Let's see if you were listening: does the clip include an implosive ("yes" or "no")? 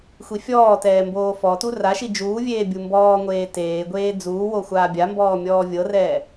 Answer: no